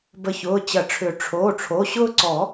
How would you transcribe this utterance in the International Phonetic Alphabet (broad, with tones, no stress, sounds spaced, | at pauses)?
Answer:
b ə˧˩ ç ʊː˩˧˩ t͡ɕ ɐ˨˩˦ ʈ͡ʂʰ ʏ˨˩˦ ʈ͡ʂʰ oː˩˧˩ ʈ͡ʂʰ o˩˧˩ ɕ ʊː˦ ǀ ɔ˨˩˦